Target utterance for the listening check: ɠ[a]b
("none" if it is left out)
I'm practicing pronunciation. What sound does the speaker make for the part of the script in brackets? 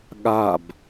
a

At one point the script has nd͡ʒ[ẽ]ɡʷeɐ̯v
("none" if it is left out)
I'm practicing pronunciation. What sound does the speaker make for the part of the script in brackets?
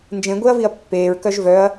ẽ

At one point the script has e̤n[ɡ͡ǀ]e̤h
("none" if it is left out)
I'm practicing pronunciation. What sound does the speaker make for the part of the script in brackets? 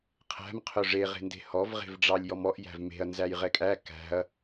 d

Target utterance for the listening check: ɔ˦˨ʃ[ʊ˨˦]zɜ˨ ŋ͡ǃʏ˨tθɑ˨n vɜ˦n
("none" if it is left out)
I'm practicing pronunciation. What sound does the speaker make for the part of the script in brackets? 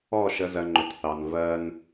ə˨˦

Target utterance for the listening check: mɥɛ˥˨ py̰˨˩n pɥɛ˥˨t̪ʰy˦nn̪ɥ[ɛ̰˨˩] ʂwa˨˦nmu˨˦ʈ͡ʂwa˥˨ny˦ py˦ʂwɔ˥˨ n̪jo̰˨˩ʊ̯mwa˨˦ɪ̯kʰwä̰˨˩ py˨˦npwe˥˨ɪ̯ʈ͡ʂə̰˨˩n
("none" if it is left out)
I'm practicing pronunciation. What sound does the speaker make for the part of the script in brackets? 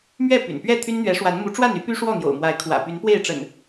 ɛ˨˦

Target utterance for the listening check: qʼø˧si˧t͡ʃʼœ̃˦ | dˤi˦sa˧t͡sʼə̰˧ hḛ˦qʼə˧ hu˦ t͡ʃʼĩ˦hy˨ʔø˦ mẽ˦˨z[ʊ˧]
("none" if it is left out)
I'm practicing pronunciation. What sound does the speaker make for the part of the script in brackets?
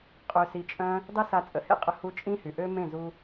u˧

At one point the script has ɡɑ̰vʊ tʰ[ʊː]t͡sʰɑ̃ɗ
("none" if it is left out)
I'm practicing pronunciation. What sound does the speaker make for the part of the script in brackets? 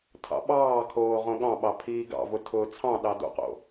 ʊː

